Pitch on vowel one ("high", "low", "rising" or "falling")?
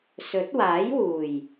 rising